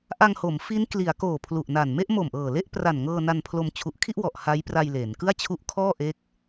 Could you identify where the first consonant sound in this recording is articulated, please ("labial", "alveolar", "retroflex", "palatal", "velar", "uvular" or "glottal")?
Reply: glottal